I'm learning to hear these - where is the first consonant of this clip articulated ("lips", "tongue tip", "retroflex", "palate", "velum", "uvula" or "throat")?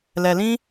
tongue tip